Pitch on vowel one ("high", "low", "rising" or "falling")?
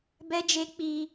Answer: high